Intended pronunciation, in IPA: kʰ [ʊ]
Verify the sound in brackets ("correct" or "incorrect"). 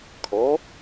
incorrect